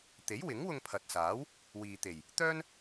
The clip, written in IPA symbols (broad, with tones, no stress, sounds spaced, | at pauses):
t̪ e˨˥ j w ɪ˨˥ ŋ w ʊ˧ ŋ pʰ ɐ˨ t̚ s aː˨˥ w | w iː˨ t̪ e˨˩ j | t̪ œː˥ n